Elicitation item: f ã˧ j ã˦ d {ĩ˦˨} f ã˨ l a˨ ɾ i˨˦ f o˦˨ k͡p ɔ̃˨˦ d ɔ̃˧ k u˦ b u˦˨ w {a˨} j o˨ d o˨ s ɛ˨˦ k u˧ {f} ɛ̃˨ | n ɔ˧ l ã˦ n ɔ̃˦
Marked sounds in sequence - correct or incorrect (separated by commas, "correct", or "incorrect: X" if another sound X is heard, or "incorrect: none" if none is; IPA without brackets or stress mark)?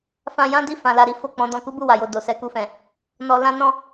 incorrect: i˦˨, correct, correct